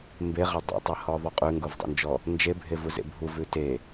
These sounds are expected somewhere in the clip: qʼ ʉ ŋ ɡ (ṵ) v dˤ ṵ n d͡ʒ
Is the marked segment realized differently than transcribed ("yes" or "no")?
yes